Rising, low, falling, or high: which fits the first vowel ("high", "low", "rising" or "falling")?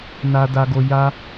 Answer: low